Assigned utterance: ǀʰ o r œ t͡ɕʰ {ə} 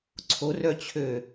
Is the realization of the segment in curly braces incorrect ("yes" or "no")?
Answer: yes